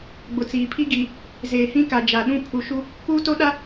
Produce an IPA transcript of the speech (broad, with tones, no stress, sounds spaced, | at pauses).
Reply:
ɡ͡b ʊ˨ t͡s iː˨ pʰ i˦ ɡ iː˨ | z eː˨ h ĩ˦ k a˨ d͡ʒ a˨ ɗ ũ˦ pʰ u˨ ʃ u˦ | k uː˦ t o˦ ɗ a˦